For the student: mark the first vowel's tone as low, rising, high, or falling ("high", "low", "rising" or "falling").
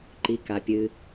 low